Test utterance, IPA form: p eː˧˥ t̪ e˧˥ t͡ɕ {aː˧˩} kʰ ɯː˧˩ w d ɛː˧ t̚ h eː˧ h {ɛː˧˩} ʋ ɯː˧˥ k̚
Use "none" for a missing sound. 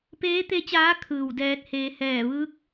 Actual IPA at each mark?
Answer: aː˧˥, ɛː˧˩

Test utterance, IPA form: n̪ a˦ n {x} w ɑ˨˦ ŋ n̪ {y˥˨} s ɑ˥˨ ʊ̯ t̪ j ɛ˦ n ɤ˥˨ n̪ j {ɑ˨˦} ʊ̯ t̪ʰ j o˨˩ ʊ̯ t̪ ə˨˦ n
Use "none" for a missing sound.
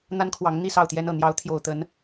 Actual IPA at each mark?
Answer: kʰ, i˥˨, ɑ˨˦

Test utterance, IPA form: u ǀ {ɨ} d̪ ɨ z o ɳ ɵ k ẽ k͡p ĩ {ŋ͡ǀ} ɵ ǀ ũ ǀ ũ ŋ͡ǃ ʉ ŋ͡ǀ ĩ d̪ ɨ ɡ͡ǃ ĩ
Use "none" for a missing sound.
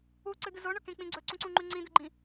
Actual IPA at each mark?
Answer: ɨ, ɡ͡ǀ

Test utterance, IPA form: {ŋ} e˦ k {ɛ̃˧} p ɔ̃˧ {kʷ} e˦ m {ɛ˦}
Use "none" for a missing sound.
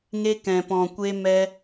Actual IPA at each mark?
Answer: ŋ, ɛ̃˧, kʷ, ɛ˦

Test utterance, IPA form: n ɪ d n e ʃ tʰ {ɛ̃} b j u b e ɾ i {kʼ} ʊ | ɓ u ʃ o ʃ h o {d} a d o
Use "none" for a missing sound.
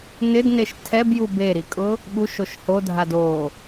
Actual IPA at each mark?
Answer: ɛ, kʼ, dʱ

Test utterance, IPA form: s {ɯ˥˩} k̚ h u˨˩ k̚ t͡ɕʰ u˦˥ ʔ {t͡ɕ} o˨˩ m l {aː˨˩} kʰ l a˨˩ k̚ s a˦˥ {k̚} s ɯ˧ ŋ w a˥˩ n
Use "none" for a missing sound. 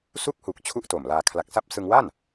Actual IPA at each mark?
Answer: u˥˩, t, aː˧, p̚

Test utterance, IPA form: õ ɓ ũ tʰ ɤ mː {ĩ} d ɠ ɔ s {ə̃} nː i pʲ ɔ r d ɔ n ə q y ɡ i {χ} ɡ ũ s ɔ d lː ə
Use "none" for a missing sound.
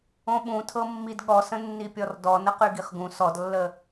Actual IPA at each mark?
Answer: i, ə̃, χ

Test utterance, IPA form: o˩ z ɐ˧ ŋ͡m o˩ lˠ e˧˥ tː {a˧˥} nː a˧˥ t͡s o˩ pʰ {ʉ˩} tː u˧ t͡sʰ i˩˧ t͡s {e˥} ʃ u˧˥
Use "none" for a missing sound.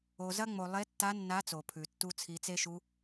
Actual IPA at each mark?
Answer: a˧˥, ʉ˩, e˥

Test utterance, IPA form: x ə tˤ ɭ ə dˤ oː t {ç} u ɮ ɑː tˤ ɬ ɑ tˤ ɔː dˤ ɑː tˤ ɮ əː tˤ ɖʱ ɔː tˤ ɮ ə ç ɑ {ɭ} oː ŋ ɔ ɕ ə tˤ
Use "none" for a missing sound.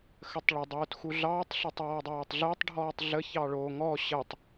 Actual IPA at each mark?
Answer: x, ɭ

